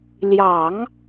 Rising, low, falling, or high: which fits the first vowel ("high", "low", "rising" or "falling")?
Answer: low